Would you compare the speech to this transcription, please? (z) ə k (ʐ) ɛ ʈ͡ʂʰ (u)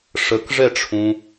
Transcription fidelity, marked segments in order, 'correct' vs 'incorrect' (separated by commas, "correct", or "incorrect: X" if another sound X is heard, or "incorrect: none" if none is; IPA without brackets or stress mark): incorrect: ʂ, correct, incorrect: ũ